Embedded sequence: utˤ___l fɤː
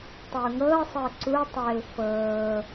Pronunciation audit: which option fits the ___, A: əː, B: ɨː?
A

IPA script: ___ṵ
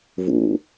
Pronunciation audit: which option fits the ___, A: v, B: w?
A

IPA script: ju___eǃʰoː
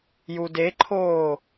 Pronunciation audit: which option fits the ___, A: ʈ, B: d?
B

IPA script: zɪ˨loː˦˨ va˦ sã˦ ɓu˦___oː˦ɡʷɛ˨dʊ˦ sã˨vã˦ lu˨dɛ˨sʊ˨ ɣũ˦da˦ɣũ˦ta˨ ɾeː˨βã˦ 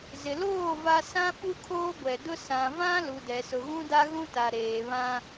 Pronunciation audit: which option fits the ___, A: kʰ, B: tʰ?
A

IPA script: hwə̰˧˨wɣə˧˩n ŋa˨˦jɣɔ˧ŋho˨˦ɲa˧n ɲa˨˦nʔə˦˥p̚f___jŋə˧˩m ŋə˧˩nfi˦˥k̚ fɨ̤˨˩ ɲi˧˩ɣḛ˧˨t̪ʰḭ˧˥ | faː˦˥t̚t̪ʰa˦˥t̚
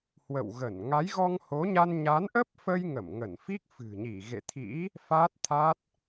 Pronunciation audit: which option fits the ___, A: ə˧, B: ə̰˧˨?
A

